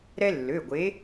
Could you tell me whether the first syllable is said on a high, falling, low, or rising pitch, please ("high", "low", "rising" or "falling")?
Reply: high